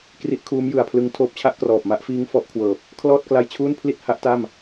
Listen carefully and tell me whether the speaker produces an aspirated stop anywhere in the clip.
yes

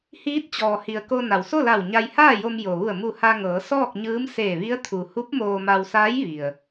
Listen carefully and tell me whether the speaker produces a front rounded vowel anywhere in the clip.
no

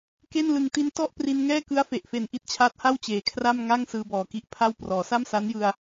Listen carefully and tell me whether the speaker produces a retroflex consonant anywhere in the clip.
no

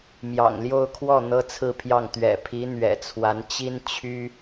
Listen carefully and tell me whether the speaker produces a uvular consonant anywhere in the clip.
no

